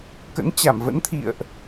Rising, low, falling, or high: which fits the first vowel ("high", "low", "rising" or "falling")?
rising